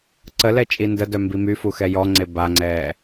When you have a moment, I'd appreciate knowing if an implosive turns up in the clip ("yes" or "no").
no